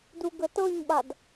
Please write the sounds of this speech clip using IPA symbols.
d u ɡ ə t ɤ ɲ ɓ a d

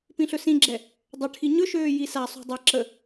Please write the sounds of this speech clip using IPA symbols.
p ĩ ɬ ɵ s ĩ ɡ͡ǁ ɛ | dˤ ə ʈʰ i ɲ ɵ ʃ øː j i s a sˤ ṳ dˤ e ǁ ə

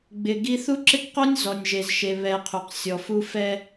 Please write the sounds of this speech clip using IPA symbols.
ɡ͡b ɪ˨ ɡ i˦ θ u˦ ǁ ɪ˦ k q o˦ nʲ z ɔ˨ nʲ ʒ e˨ z ʃ e˨ β ɛ˨ qʰ u˨ q sʲ ɔ˨ f u˦ f ɛ˦

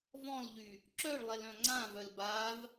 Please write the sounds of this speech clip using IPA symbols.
v ɔ̃ l ʎ y | ǁ œ ɭ lˠ ɛ l œ̃ ŋ͡ǀ ã v œ l b a v

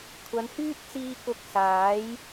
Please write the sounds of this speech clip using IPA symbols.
kʷʰ ɐ˨˧ n h yː˥ t̚ t͡s iː˧ k ʊ˧ k̚ s aː˨˥ j

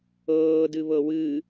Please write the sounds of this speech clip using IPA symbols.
ɤː d ɨ β ɤ w ɨ

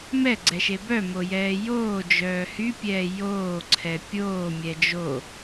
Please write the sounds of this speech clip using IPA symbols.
m ɛ ɡ͡ǀ ɛ ʃ e b œ m o j ɛː j oː d͡ʒ œː h y pʲ ɛː j oː ǀʰ ɛ pʲ oː mʲ ɛ d͡ʒ o

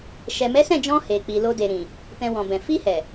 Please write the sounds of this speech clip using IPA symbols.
ʃ ɛ˨ m ɛ˨˦ s ɛ̃˦˨ d͡ʒ ɔ̃˧ h e˨ k͡p i˨ l o˧ d e˨ ɾ ĩ˨ | t ɛ̃˧ w ɔ̃˨ b ɛ̃˨ f i˧ h ɛ˨

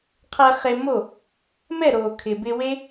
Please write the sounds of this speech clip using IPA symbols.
qʰ ɛ˧ χ e˧ m o˦˨ | m ɛ˦˨ ɾ o˨ kʰ ɪ˨ b ɪ˧ w e˦

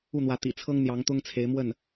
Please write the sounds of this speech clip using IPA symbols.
u˥˩ n̪ w ä˧˥ t̪ ḭ˨˩ t͡sʰ ɤ˥ ŋ n̪ j ɑ˧˥ ŋ t̪ ʊ˥ ŋ t͡sʰ e˧˥ ɪ̯ m w ə˥˩ n

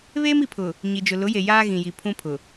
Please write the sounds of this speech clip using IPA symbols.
β eː˦ m i˨ pʰ ʊ˨ | ɲ i˨ d͡ʒ ʊ˨ l ʊ˨˦ j e˨ j aː˦ ɣ ĩ˨ j i˨ pʰ ũ˦ pʰ ʊ˨

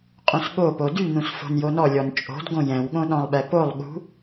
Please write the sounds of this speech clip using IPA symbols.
qʼ ũ s ɠ o p o d y n ũ s f o̤ n j o n ɔ lʲ ɔ n t͡ʃʼ o̤ d ɡ õ j ɛ̃ w ɠ õ ɗ ɔ̃ lˠ ɓ ɛ p o lˠ ɠ ṳ

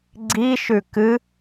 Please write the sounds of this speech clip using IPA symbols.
ɡ͡ǀ i ʃ ʉ k ɨ

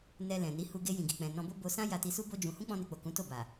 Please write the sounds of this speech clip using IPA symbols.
n ɛ˧ l ɛ̃˨ n i˨˦ h u˧ ɡ e˧ j ĩ˨ ɡ i˨ k͡p ɛ̃˨ n ɔ̃˧ b o˦ b o˧ s ã˦ j a˧ t i˧ s u˦ b o˦ d͡ʒ ũ˧ h ũ˦ k͡p ɔ̃˧ n e˨ k͡p o˨ k ũ˨˦ t o˦˨ b a˨

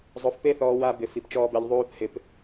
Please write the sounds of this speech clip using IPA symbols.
zˤ o˧ f p e˦ θ ɔː˧ w a˧ b ɪ˨ f i˨ p t͡ʃ ɔː˦ b ɛ˧ ʎ ðˤ uː˦ θ h ɪ˧ p

